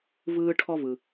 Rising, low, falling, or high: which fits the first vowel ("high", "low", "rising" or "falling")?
high